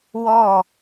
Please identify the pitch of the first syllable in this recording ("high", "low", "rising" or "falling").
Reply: falling